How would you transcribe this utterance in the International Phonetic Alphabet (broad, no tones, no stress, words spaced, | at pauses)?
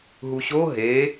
ɦuɕo ɦe